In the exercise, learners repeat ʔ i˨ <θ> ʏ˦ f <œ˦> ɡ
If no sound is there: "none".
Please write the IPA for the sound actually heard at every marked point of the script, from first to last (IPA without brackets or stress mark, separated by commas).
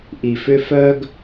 f, œ˦